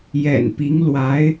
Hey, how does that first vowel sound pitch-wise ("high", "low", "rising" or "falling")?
low